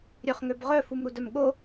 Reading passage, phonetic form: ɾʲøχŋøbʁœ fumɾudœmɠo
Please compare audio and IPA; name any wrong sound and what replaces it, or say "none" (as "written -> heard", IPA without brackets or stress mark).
none